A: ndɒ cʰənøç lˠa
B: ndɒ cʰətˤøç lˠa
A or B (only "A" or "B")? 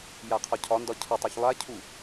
B